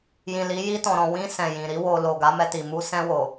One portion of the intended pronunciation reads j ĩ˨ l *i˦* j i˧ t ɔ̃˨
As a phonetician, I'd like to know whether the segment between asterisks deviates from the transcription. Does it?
yes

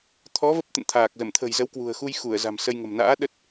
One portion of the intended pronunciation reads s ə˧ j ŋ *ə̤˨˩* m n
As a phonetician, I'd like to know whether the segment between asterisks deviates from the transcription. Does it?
no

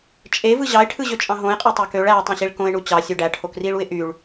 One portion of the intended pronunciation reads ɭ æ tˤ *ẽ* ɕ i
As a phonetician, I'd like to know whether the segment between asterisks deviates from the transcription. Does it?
no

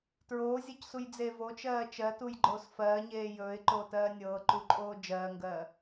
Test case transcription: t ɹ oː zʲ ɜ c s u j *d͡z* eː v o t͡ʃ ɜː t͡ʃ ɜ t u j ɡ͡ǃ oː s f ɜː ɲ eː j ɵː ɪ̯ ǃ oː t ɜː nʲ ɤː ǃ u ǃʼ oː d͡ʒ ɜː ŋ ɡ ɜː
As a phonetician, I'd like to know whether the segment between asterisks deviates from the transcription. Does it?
no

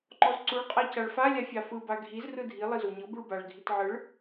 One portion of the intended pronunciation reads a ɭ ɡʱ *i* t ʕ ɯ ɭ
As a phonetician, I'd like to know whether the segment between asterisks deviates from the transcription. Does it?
no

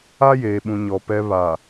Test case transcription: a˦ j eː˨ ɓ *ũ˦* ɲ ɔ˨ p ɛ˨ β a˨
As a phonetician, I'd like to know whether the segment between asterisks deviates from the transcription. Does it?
yes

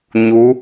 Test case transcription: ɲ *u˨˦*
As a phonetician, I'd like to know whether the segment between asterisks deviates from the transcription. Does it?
no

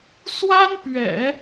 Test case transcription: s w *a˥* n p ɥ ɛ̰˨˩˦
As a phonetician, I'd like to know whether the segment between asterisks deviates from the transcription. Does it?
no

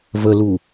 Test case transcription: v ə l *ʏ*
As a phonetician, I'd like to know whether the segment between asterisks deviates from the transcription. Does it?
yes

